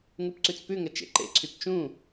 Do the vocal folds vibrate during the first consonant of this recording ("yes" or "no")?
yes